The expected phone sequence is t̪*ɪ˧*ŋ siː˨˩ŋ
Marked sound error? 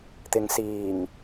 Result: no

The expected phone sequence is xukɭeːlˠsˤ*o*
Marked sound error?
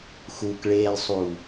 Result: yes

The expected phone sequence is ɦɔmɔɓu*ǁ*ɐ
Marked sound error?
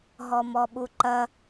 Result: yes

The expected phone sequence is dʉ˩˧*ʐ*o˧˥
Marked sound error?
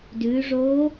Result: no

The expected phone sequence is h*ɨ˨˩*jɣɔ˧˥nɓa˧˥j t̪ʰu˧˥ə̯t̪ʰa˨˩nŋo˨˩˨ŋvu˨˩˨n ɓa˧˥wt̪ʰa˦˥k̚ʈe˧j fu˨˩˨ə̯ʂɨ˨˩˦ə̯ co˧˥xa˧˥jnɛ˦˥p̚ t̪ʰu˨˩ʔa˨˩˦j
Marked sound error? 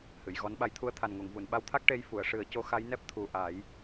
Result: yes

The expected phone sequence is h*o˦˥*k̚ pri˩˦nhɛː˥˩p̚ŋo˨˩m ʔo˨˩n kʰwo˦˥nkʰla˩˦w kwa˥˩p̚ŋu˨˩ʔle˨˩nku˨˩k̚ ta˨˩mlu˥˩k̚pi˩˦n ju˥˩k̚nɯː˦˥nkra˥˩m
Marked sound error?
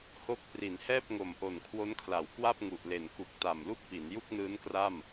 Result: no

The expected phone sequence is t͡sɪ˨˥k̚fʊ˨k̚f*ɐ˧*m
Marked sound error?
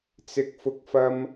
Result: no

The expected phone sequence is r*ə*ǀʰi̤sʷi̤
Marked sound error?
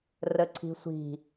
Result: no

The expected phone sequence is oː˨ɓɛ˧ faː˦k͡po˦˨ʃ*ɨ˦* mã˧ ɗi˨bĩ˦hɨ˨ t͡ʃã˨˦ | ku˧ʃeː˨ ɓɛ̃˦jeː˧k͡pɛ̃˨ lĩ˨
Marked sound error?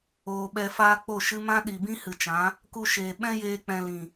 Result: no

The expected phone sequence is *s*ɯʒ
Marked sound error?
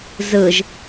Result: yes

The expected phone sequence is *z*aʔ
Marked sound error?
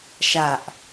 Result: yes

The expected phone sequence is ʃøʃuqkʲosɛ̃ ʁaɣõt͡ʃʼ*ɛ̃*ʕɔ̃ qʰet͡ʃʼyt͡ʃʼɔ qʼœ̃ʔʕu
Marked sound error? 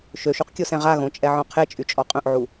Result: yes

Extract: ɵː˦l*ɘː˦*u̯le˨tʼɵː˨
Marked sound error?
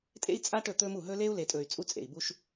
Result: yes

